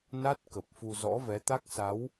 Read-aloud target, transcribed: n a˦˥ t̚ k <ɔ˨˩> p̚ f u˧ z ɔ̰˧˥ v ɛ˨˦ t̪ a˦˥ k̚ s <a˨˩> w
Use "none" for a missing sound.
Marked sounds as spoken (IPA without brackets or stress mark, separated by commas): ə˨˩, a˨˦